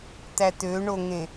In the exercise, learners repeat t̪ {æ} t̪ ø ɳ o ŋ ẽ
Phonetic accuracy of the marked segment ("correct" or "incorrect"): correct